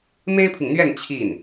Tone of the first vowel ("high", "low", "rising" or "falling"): high